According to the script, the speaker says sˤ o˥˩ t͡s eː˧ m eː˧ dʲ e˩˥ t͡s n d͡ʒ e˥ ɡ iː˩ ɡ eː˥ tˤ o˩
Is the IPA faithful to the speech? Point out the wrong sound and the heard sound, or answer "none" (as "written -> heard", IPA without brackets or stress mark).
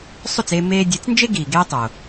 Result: none